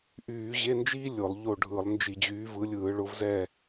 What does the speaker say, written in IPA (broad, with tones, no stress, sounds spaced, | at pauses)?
ʔ yː˧˩˧ ʑ e˧˥˧ n d͡ʒ iː˥ lʲ ʊ˧˩˧ lˠ ʎ o˦˨ ɖʱ ɯ˧˩˧ lˠ n d͡ʒ i˧˩˧ d͡ʑ yː˨˦ v ɯ˨˦ lʲ ɯː˧˩˧ ɭ ʊ˨˦ v z ɛ˦˨